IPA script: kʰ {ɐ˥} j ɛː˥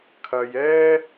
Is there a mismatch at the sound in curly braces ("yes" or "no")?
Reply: yes